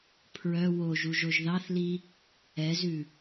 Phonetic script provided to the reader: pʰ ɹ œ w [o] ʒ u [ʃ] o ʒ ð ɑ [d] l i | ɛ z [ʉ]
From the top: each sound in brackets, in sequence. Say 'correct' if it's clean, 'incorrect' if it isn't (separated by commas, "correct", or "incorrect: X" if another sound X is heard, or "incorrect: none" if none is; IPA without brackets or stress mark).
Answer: correct, incorrect: ʒ, incorrect: θ, correct